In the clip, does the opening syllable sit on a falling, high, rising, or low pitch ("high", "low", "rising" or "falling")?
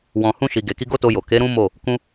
low